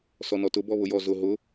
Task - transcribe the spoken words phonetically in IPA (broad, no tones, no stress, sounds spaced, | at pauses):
s ɔ n ɔ t ʊ b ɔ β ʊ j ɔ z ʊ ɦ ʊ